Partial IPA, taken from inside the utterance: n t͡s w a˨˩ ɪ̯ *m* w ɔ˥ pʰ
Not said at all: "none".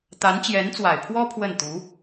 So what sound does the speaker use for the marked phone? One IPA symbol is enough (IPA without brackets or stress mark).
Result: pʰ